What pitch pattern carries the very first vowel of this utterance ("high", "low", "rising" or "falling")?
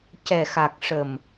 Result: low